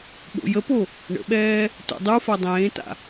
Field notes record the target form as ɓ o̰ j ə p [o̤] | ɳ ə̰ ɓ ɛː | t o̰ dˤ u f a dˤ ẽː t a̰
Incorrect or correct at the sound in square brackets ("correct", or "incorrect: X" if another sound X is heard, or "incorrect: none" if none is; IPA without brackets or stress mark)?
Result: incorrect: o